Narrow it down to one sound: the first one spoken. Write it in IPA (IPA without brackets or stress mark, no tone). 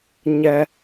ɲ